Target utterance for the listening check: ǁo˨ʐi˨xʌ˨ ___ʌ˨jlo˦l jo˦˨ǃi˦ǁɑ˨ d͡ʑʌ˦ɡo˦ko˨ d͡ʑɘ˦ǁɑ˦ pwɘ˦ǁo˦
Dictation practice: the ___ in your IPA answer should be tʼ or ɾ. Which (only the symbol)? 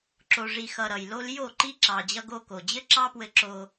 ɾ